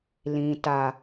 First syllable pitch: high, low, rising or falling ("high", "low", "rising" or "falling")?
low